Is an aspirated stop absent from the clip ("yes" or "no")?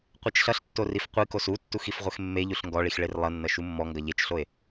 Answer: yes